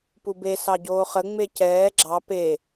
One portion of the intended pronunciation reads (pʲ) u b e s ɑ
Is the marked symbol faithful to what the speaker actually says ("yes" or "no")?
no